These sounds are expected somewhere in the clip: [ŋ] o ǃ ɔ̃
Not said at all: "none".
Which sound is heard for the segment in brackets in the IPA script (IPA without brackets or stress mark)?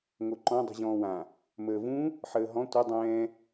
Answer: ŋ